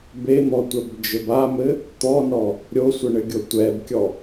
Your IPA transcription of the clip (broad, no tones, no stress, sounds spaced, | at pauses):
b e n̪ ɔ tʷ ɛ b d͡ʒ ɘ b a m ɘ | t̪ ɔ n ɔ | ɾʲ o sʷ ə ɳ ɘ ɡʲ o tʷ ɛ b kʲ ɔ